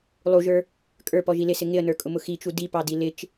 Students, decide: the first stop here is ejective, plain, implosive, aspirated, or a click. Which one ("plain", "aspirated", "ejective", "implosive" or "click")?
ejective